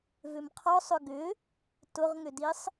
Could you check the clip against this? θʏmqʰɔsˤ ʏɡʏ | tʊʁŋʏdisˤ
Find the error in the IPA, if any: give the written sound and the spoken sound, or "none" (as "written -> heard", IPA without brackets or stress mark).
θ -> v